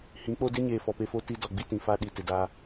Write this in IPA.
h ĩ˨˦ k͡p o˦ d ɪ˦ ɲ eː˨ f ɔ˨ p e˦ f o˦ t i˦ d ɔ˨ ɡ͡b i˦ t ĩ˨ f a˦ ɗ i˨ t ɪ˨ d aː˦

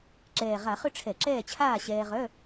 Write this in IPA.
ǁ ɛː˨˩ ʁ a˧˩˧ χ ʏ˥˨ ʈ͡ʂʰ ɛ˧˩˧ ǁ ɛː˥˨ t͡ɕʰ aː˥˨ ɕ ɛː˧ ʁ œ˧˥˧

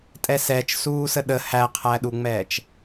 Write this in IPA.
tʼ ɛ s ɛː t͡ʃ s uː s ə ɗ ə h æ qʰ æ ɗ u ŋ͡m ɛː t͡ʃ

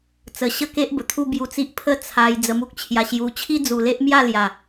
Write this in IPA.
t͡s ə˨˩ ɕ ə˥˧ k e˦ ʔ b ə˨˩ t̪ʰ u˦ b j u˧ t͡s i˦ ʔ pʰ ə˥˧ t͡sʰ a˧ j d͡z ə˧ m u˦ k̚ t͡ɕʰ j a˧ ɕ j u˧ t͡ɕʰ i˦ d͡z u˨˩ l e˦ ʔ m j a˥˧ l j a˨˩

